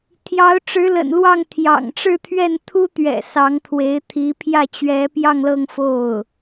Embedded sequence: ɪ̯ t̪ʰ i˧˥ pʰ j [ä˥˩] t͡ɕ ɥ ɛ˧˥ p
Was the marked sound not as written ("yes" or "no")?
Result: no